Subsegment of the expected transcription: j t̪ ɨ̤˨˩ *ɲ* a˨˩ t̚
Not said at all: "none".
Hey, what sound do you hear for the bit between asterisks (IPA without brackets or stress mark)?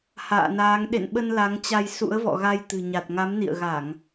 ɲ